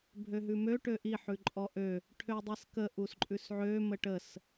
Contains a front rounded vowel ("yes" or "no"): yes